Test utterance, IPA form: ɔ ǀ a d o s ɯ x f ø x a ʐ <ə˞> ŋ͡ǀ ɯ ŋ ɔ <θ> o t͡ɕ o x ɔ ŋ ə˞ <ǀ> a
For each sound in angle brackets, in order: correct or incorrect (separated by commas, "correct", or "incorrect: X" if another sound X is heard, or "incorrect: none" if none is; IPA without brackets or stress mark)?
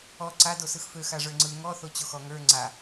correct, correct, incorrect: ŋ͡ǀ